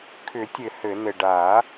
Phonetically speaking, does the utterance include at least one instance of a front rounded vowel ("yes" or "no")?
yes